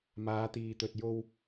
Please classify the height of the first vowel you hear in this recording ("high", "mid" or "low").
low